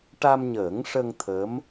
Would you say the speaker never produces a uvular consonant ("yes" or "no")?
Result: yes